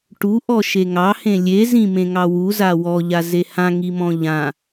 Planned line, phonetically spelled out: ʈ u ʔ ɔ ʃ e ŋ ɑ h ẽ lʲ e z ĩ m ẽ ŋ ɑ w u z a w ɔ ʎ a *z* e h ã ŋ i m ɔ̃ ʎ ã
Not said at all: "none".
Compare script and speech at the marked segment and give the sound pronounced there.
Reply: z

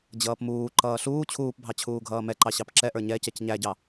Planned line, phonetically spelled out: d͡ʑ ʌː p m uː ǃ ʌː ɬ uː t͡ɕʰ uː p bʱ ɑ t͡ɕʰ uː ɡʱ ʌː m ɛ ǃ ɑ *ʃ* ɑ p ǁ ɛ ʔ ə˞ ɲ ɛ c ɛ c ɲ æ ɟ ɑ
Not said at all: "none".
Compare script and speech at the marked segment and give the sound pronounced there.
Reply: ɕ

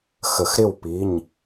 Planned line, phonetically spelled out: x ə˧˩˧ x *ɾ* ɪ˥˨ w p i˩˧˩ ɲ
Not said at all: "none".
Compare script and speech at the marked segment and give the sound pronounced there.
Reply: ɾ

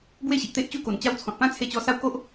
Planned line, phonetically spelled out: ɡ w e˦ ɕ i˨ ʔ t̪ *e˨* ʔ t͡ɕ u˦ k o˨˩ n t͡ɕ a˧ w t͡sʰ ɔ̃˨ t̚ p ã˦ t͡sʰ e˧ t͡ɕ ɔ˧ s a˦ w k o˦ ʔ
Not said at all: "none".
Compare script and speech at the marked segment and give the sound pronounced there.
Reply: e˦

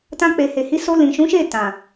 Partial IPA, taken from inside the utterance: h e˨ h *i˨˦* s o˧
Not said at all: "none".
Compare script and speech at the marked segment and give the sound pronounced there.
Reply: i˨˦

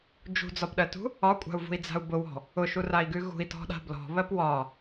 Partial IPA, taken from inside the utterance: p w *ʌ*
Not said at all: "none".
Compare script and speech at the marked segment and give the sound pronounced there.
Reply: ɒ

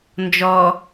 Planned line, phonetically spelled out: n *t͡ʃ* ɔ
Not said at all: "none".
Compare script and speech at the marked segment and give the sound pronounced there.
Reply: d͡ʒ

